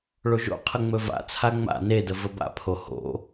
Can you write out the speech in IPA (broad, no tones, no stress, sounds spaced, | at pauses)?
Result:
ɭ o ʒ o̰ qʰ ə ŋ͡m ɵ v a̰ t͡sʰ a ŋ͡m a̰ n e d ə v ə b a̰ pʰ o h o̰